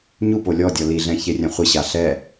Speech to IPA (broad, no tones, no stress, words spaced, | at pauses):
ɲu polʲɔdʲɔ liɮɛ̃ çerʲɛ̃χʷɪɕa ɬɛ